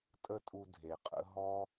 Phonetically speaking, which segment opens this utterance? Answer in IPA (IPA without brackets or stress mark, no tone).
tʼ